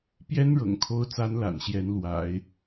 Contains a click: no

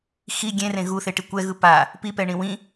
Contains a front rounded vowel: no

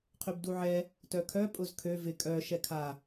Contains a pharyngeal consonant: yes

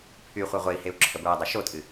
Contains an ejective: yes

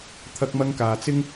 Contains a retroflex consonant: no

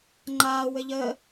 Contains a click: yes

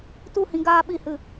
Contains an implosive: yes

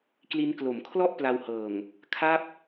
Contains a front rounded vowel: no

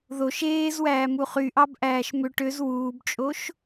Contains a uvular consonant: yes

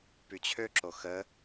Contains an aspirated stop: yes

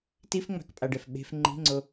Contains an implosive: yes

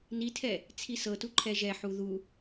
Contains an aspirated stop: yes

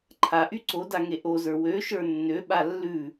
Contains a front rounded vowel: yes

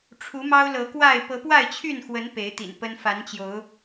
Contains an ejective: no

